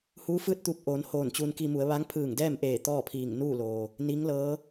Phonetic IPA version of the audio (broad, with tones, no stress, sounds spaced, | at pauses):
h uː˧˥ f ɯː˥˨ t̚ t̪ u˧ p̚ ʔ oː˩˧ n h oː˧˩ n t͡ɕ uː˧ n k i˧ m u˩˧ ə̯ ʋ a˧˥ ŋ pʰ ɯː˧˩ ŋ d ɛː˥˨ m ʔ eː˧˩ t̪ ɔː˥˨ pʰ iː˧˩ ŋ n uː˥˨ l oː˩ | n iː˧˥ ŋ l ɤː˧˥